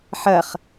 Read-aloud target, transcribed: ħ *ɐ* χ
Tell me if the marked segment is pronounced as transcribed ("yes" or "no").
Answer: yes